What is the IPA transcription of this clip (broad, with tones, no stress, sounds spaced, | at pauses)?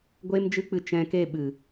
ɡʷ eː˦ m d͡ʒ ɨ˦ k͡p ɨ˧ t͡ʃ ɛ̃˧ k e˦˨ ɓ ɨ˨